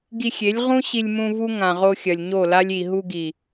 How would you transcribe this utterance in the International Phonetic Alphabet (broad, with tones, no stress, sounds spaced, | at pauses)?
ɡ i˧ xʲ e˨˦ lʲ ʁ ũ˦ ɕ i˧ lʲ m ũ˧ v u˦ ŋ ã˨ ʁ o˧ xʲ ɐ˨ lʲ ɲ o˦˨ l a˦ lʲ i˨ ɦ u˧ ɡ i˨